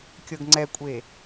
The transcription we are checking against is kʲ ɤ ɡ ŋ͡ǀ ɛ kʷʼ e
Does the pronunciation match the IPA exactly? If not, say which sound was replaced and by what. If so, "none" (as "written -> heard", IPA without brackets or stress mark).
none